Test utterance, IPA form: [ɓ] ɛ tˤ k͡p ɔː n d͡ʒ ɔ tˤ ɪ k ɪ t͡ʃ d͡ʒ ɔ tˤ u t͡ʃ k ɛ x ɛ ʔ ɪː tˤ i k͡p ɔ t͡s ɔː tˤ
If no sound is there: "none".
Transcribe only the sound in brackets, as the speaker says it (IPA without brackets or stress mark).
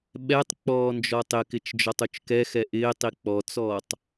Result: ɓ